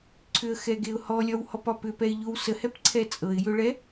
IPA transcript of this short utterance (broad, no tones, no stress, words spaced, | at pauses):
ǀʰʏə̯xɛɡeʊ̯ hɔlʲɒwhɔpɒ pʏpɛɪ̯ʎow səhɛpǀʰɛ t͡sʼɤɪ̯jʏɭɛ